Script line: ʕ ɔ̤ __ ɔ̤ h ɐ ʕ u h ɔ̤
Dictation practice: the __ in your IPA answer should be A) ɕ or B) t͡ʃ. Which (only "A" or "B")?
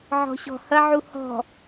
A